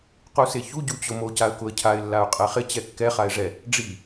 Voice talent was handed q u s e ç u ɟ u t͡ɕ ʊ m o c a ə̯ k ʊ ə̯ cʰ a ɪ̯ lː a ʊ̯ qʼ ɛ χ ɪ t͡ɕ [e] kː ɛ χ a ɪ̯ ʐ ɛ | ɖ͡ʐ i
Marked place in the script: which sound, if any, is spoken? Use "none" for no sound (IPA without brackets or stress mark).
ɛ